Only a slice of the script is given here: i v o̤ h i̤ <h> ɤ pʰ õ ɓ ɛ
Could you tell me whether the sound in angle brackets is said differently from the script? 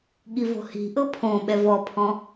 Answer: yes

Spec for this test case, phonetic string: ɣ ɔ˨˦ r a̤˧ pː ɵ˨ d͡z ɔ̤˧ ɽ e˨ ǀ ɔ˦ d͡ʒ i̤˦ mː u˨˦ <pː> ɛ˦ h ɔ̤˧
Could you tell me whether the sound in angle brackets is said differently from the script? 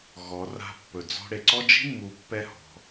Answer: no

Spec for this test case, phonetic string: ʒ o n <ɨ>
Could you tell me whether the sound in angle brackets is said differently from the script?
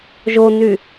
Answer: yes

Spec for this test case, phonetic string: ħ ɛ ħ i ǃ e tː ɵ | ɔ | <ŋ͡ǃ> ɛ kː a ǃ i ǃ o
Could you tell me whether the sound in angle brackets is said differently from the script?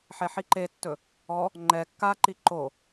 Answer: no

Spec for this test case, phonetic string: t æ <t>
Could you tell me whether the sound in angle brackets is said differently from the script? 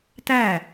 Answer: yes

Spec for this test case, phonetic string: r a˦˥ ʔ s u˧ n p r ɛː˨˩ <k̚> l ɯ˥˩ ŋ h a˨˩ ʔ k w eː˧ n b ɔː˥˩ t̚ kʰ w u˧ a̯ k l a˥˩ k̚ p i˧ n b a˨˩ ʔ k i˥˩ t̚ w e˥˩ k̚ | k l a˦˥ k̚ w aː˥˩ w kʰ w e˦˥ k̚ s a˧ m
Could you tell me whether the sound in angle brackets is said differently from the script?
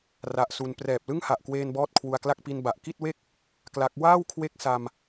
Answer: yes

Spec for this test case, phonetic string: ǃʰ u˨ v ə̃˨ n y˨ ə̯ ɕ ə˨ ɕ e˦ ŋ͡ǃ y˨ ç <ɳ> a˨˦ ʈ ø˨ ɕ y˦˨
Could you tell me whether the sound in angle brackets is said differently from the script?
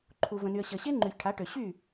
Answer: yes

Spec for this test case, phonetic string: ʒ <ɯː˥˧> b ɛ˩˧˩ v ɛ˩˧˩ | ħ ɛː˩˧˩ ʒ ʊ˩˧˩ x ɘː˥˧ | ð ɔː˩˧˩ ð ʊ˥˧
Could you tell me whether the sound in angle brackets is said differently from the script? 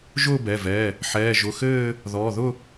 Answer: yes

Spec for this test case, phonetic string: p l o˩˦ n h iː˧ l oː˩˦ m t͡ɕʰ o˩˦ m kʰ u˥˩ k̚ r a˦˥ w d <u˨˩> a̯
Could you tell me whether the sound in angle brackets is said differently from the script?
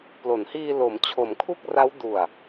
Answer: no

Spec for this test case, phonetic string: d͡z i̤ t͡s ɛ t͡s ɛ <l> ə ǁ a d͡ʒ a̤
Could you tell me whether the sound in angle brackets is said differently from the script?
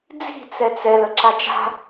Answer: no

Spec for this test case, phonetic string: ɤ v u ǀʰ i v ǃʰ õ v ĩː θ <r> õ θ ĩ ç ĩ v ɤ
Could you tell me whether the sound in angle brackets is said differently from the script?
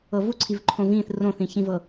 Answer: no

